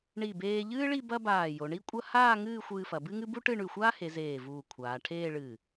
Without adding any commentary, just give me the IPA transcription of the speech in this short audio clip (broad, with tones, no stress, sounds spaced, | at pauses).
ɳ i˧˩ b eː˧ ʎ ɨː˥ ɭ i˥˧ b ɐ˥ b aː˧˩ j o˩˧ ɳ i˥ kʷʼ ɐ˥ h aː˥˧ ŋ ɨː˥˧ xʷ ɨː˧ f ɐ˩˧ b ɨ˥ ŋ ɨ˥ b u˥ ʈ ɨ˥˧ ɳ ʉ˧˩ xʷ aː˥ h e˩˧ z eː˧˩ v uː˧˩ kʷʰ aː˩˧ ʈʰ eː˥˧ ɭ ɨː˧˩